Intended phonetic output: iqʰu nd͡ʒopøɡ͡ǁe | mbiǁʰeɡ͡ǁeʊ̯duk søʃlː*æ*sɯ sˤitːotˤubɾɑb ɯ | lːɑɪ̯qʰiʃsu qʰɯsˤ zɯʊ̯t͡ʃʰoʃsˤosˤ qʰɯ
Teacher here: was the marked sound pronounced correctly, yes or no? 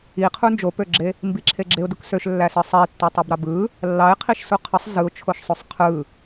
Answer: yes